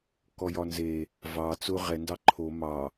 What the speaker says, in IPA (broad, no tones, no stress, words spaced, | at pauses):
kɔjɒnze | vɑ t͡sʊ ʁɛ ndɑǃʰo mɑ